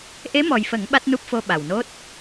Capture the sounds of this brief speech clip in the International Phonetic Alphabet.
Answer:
ʔ e˧˥ m ɔ˨˩ j f ə˨˩˦ ŋ ɓ a˦˥ t̚ n u˦˥ p̚ f o˧ ɓ a˨˩ w n o˦˥ t̚

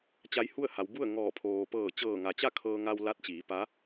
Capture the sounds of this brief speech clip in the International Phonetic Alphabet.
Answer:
t͡ɕ a˧˥ j h u˥˨ ə̯ h a˩˧ w b u˥˨ ə̯ ŋ ɔː˧˩ pʰ oː˩ p ɤː˧˩ t͡ɕ ɤː˧˩ ŋ a˩ t͡ɕ a˥˨ kʰ ɤː˧ ŋ a˧ w l a˧˥ t̚ t͡ɕ iː˩˧ p a˧˥

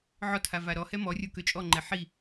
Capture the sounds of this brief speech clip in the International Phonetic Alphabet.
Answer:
ʕ ɔ tʰ a v a ɾ ɔ h ɛ m ɔ rʲ o k ø t͡ʃʼ ɔ ŋ͡ǃ ɛ ħ i

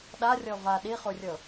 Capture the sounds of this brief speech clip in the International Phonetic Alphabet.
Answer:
ɗ a rʲ ɔ v a ɗ i χ u rʲ ɤ

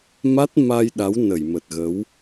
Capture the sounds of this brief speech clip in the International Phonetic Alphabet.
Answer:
m a˦˥ t̚ m a˧ j ɗ a˨˦ w n ə˧˩ j m ə˨˩ t̚ ɣ ə˨˦ w

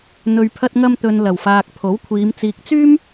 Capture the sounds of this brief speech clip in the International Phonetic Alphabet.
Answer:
n̪ ɵ˨ ɥ pʰ ɐ˧ t̚ ŋ ɐ˧ m t̪ ɵ˨ n l ɐ˨˩ w f aː˨ k̚ pʰ o˨˥ w kʷʰ iː˨˧ m t͡s iː˨ k̚ t͡s yː˥ m

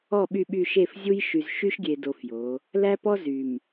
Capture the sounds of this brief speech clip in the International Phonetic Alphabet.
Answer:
ɔ˦˨ ɓ y˦˨ ɓ y˦˨ ʃ e˦˨ f zʲ u˦ j ʃ y˨ z ʃ y˦ ʃ ɡʲ e˨ d o˨ f j o˨˦ | l æ˦ p ɔ˦ z y˨ m

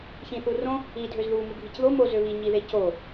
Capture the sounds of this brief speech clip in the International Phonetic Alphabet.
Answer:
ç ĩ θ u r õ | i dʱ ø z ð u m u ɡʱ i c ð o m o z ø β i ɲ i ð e c o

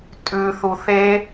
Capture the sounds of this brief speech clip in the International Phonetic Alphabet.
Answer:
tʼ ʉ θ u θ e

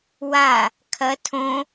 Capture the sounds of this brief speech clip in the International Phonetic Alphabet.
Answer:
w a | kʰ ɐ tʰ õ

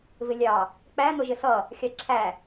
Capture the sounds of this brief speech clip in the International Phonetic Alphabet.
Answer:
v ɪ lʲ ɑ | k͡p æ n̪ ʊ ʒ ɪ s ʌ | xʲ ɑ ǁʰ æ

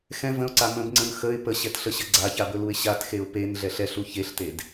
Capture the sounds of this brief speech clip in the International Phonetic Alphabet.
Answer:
x ɛ̃ v ə̃ ʊ̯ ǀ a m ə̃ b ŋ͡ǀ ə̃ n x ə ɪ̯ p ə ɕ ɛ t ɬ ə ɕ ə ɡ͡ǀ a ç a b ɵ l u ɪ̯ ɕ a t x e ʊ̯ p e n ɮ ɛ ɬ ɛ ɬ u ç e ɬ t e d

